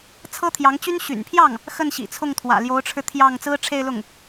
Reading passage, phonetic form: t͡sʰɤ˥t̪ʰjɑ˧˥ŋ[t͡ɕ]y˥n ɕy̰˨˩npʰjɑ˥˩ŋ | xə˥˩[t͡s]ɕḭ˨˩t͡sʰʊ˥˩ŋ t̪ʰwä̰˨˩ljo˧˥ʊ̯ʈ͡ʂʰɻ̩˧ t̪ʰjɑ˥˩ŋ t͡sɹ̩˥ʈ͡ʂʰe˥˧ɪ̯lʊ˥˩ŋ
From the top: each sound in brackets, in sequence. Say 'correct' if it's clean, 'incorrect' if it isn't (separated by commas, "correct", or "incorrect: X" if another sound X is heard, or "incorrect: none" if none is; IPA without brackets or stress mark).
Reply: correct, incorrect: n